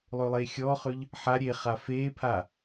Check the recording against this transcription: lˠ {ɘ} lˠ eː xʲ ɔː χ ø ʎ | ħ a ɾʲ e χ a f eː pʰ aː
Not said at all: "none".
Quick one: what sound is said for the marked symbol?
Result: ø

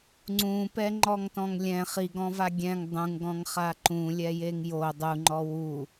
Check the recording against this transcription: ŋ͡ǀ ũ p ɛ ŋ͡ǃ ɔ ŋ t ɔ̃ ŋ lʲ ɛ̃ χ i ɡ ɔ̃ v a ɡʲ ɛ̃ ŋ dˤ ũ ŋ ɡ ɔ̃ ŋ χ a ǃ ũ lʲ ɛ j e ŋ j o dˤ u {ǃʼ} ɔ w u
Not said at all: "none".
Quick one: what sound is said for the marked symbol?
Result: ŋ͡ǃ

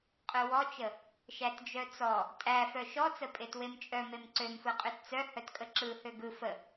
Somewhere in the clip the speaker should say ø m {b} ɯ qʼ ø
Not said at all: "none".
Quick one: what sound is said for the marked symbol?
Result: f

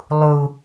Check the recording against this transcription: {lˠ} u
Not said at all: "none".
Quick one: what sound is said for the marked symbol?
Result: lˠ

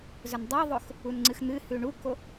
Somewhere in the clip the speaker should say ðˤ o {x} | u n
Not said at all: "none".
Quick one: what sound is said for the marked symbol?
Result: x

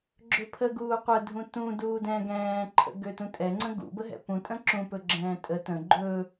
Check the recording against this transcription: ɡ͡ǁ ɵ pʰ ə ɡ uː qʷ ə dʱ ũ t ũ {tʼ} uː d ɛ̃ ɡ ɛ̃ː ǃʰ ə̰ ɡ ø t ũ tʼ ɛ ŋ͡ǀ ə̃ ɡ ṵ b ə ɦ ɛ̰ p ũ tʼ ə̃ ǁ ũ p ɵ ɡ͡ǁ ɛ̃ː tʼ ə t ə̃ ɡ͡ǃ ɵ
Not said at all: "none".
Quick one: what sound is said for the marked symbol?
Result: d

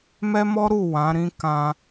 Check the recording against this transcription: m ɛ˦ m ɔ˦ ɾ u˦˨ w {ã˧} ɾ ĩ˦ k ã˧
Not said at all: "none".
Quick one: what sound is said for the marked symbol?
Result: ã˨˦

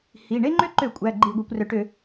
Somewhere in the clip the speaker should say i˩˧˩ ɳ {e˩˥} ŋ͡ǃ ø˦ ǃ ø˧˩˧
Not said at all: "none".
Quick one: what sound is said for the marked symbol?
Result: e˦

